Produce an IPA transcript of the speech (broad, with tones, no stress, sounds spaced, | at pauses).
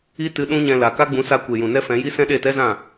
i˦ t ɨ˧ ɗ ũ˦ ɲ ɛ̃˧ l a˨ k a˦ ɡ͡b ũ˨˦ s a˧ kʷ e˨ j ũ˨ n ɛ˦ f ɛ̃˨˦ j i˦ s ɛ̃˦ ɗ e˦˨ t ɛ˦ z ã˦˨